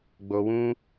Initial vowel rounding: rounded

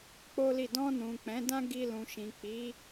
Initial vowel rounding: rounded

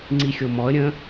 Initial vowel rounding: unrounded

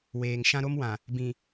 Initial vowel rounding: unrounded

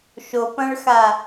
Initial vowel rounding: rounded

